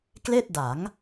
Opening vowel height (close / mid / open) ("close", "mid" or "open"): mid